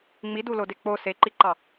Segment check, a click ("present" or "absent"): present